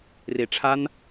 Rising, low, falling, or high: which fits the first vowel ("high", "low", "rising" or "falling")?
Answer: low